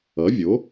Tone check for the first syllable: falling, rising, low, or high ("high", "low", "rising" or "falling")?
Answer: rising